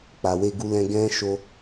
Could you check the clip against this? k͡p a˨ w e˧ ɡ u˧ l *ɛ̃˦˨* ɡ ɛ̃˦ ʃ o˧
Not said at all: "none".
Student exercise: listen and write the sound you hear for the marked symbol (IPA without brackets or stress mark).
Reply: ɛ̃˧